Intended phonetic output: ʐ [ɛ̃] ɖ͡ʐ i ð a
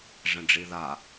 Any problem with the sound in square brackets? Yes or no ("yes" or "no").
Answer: no